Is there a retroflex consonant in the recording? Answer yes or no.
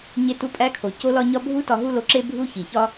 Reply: no